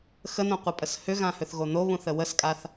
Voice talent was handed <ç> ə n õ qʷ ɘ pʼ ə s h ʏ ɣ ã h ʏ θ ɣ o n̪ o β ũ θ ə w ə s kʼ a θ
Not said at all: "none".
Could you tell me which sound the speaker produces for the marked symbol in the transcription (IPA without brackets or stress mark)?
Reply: x